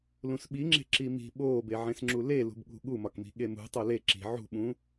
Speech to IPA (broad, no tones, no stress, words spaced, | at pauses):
lũsɓiŋ͡ǁe̤ ǁimi̤ ɓoːbeʕẽsŋ͡ǁu lelṳbɠṳ ɠumɒkmi̤ ɠemṳ tˤole ǁi̤ ʕṳɓũ